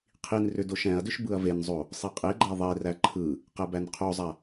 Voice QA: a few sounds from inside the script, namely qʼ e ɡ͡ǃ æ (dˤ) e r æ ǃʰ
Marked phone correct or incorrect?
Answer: incorrect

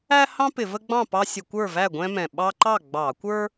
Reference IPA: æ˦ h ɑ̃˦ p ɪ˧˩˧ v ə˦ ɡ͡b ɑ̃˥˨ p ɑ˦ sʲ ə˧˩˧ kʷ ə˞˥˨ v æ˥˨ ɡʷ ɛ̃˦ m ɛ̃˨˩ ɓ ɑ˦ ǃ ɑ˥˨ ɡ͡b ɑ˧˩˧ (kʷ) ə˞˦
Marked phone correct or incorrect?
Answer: correct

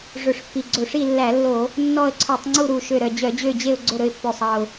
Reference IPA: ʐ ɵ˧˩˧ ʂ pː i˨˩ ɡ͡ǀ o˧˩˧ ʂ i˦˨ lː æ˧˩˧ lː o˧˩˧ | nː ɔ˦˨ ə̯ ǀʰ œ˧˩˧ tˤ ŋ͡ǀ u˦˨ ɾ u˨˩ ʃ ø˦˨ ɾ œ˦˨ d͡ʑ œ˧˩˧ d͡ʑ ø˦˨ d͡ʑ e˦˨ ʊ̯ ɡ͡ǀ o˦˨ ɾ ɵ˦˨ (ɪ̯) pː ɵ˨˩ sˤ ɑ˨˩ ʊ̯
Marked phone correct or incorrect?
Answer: correct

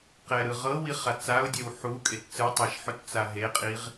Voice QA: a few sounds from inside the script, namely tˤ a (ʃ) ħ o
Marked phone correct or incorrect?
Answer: correct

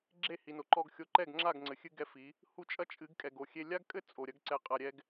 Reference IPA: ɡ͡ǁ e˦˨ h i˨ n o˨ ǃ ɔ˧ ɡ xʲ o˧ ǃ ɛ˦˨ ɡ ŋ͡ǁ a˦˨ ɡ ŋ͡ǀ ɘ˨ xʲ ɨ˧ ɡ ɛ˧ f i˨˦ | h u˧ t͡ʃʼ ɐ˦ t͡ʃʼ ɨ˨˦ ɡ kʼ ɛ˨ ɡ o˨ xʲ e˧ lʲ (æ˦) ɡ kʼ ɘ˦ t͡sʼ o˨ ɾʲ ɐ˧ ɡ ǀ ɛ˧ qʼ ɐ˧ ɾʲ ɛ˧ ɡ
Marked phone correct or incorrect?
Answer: incorrect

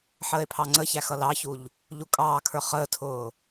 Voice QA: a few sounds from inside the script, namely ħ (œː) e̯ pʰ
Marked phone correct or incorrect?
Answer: incorrect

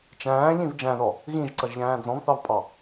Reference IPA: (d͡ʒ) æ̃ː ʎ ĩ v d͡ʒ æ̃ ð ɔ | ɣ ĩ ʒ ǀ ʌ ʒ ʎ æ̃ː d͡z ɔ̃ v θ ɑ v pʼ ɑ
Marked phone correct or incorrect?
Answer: incorrect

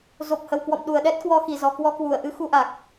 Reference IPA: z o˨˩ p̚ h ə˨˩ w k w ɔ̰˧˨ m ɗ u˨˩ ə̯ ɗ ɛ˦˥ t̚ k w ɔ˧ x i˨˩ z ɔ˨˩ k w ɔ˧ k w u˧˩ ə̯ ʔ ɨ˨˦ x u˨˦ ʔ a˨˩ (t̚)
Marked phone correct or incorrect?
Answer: incorrect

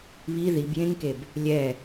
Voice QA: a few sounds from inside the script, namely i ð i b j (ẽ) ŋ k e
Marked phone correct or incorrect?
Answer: correct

